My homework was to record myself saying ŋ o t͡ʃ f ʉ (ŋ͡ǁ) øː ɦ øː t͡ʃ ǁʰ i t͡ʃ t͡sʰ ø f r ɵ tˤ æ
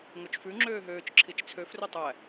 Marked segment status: correct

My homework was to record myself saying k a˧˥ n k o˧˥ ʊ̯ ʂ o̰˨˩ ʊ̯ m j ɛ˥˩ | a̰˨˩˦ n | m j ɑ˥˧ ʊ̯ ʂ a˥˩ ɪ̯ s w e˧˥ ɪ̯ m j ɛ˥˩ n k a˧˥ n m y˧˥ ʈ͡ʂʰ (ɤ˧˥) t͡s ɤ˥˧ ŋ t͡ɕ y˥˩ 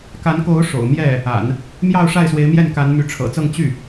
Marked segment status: incorrect: ɤ̰˨˩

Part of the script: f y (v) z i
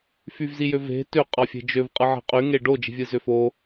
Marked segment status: correct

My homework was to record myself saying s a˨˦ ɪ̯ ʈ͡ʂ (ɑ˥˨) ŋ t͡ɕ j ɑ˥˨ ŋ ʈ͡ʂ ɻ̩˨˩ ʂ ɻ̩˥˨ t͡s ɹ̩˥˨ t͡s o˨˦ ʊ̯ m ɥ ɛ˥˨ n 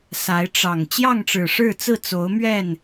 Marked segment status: incorrect: ɑ˨˩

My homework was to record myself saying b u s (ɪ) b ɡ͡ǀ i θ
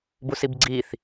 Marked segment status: incorrect: i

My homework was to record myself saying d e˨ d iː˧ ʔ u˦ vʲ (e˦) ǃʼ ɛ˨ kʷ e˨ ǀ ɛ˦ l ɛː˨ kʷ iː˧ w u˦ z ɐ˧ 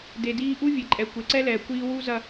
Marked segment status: incorrect: e˨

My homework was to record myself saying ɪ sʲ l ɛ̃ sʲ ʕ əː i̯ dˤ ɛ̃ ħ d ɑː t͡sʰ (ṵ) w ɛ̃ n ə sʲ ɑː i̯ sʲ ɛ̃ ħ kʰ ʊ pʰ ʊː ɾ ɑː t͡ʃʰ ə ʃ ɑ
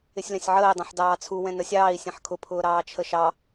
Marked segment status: incorrect: u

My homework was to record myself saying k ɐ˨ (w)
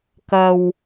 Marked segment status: correct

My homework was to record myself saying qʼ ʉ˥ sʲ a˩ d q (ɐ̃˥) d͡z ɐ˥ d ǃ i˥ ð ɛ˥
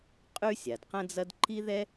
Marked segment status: correct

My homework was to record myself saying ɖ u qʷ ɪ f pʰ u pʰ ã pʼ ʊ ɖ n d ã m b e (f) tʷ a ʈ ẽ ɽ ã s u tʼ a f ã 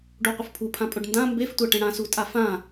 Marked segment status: correct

